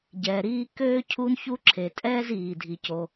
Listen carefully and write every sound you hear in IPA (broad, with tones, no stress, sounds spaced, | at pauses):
ɟ ɛː˩ ɾ iː˥ k øː˥ cʰ u˥ n ç u˥ ǁʰ e˩ tʼ ɛː˥ z iː˩ dʱ i˩ c o˩